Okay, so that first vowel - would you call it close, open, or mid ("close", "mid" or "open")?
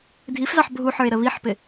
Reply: close